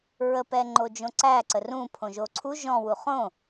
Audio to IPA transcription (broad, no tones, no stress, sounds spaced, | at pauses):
ɹ ə p ɛ ŋ͡ǃ o d͡ʒ õ ǀ æ ǀ ə r ũ pʰ õ ʒ o ǀʰ u ʒ ɔ̃ w u χ õ